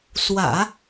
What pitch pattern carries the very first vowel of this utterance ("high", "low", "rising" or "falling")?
low